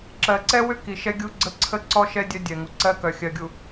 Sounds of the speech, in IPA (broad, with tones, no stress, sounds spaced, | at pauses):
ǁ ɜ˨ ǀ ɛ˦ w ʏ˦ k i˨ ʃ ɛ˦ ɡʲ u˦ ɡ͡ǀ ə˦˨ ǀʰ ə˦ ǀ ɔ˦ ʃ ɛ˦ dʲ œ˦ dʲ ɛ˨ ŋ u˨ ǀ ɜ˦ k œ˨ xʲ ɜ˨ ɡʲ u˨